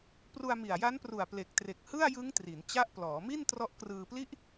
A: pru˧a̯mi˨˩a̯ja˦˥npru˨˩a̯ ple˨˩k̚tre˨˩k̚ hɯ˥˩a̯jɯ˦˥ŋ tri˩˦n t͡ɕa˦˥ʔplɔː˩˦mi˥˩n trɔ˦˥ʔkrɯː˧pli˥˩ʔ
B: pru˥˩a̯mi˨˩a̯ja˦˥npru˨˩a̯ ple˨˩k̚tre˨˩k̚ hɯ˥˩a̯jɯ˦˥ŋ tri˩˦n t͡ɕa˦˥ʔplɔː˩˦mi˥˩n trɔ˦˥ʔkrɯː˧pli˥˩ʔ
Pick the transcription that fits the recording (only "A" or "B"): A